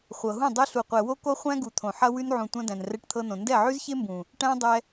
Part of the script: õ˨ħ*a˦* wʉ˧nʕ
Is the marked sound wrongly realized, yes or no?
yes